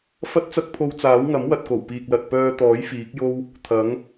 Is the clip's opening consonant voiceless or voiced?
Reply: voiceless